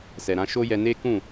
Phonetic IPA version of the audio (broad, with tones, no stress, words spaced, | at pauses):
sɛ˨ɾã˨˦ ʃo˦jɛ˧ne˦kũ˦˨